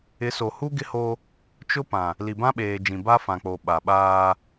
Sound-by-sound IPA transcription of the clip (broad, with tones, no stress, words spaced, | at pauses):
ɪ˨˦so˨hu˦ ɡɪ˦ho˦ | t͡ʃʊ˦pã˨ | li˨bã˦ɓeː˨d͡ʒĩ˨ ba˦fã˨k͡po˨ ɓa˨ ɓaː˦